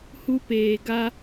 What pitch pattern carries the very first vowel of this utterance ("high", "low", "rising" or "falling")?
high